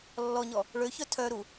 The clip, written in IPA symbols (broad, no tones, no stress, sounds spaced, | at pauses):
lː ɔ ɲ ɔ | ɭ ø ç œ tʰ œ ɾ u